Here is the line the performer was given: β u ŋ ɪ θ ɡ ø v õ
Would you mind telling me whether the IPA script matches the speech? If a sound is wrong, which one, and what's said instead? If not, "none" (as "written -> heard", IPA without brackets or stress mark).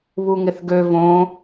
none